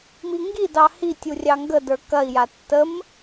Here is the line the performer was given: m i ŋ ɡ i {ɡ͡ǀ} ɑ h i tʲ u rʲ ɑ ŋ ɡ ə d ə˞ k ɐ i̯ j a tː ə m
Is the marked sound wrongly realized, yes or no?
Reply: yes